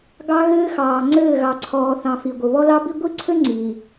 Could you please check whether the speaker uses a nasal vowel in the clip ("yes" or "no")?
yes